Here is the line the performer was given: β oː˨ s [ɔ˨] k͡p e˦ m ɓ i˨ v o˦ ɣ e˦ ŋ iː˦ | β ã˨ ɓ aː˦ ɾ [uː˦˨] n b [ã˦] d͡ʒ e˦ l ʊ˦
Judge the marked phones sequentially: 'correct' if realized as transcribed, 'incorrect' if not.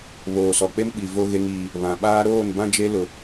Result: correct, incorrect, correct

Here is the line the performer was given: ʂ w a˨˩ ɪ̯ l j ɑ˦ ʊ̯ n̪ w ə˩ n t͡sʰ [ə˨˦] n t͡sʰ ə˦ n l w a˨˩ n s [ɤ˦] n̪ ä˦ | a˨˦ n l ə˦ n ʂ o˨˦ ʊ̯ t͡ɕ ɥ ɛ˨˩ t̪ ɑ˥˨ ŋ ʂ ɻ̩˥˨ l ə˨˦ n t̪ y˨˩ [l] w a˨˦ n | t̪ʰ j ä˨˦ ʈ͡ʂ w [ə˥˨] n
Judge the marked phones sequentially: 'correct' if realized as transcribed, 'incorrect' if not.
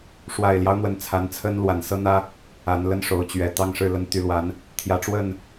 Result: incorrect, correct, correct, correct

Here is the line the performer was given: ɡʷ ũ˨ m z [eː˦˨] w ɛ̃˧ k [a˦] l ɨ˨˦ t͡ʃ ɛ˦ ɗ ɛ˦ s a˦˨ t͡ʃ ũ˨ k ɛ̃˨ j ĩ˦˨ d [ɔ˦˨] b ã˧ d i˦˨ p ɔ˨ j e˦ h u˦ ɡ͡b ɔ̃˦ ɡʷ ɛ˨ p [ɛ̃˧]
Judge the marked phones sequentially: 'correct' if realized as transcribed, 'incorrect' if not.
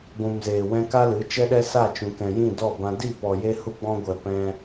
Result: incorrect, correct, correct, correct

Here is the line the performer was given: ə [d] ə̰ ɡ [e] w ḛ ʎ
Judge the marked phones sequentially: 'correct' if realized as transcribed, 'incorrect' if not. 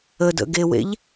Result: correct, correct

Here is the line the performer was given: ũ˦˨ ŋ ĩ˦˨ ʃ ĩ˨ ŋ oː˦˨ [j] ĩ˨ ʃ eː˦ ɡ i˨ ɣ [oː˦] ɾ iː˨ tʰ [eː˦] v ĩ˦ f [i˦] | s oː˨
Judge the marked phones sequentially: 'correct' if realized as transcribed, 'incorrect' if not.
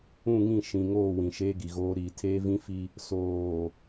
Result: incorrect, correct, correct, correct

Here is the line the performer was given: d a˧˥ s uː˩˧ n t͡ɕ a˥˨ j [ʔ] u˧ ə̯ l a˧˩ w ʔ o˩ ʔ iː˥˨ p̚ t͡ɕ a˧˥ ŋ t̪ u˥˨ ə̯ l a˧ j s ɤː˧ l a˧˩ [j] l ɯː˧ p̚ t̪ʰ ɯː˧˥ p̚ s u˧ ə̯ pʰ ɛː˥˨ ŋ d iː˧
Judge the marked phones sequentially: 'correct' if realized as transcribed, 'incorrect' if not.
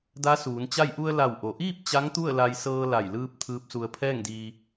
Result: correct, correct

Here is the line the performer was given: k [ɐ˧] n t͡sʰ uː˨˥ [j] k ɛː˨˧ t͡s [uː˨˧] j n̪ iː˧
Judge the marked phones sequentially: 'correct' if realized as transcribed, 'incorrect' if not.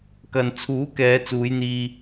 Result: incorrect, incorrect, correct

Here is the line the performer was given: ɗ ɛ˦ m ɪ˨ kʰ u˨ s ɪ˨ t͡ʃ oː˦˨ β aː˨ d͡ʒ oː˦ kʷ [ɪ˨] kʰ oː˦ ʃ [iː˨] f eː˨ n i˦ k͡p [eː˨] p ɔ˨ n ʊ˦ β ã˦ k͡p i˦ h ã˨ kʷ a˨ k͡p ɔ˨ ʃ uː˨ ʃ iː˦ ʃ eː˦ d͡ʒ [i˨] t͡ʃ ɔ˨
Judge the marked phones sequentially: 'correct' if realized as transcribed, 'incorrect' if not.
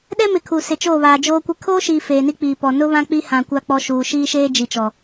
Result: incorrect, correct, incorrect, correct

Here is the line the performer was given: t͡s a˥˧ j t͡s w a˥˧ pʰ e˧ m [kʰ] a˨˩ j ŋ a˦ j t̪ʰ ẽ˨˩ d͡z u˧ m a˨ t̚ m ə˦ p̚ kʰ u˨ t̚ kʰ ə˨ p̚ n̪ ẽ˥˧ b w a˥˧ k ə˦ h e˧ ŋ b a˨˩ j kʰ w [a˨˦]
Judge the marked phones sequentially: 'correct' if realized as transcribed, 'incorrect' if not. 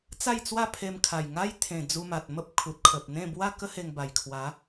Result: correct, correct

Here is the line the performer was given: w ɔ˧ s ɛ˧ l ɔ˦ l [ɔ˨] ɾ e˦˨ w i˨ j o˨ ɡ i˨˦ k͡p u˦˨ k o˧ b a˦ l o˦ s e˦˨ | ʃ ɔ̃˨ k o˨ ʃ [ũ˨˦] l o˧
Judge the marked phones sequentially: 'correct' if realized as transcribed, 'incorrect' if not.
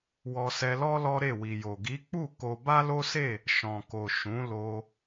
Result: incorrect, correct

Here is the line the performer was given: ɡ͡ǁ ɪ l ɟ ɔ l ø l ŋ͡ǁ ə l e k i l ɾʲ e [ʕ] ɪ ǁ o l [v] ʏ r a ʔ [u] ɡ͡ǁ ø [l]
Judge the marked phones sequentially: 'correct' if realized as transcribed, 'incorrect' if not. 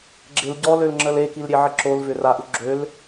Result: correct, correct, correct, correct

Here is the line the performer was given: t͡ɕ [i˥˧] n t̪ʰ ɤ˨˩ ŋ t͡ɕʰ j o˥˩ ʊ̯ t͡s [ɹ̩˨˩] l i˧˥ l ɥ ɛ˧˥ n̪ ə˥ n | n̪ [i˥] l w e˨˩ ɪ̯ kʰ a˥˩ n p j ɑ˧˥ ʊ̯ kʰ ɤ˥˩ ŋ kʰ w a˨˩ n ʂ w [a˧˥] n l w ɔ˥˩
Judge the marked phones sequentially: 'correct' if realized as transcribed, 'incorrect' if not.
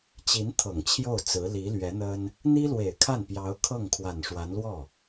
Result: incorrect, incorrect, correct, correct

